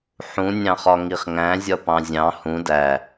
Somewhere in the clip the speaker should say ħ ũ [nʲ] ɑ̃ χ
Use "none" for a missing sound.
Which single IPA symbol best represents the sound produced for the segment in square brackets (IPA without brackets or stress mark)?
nʲ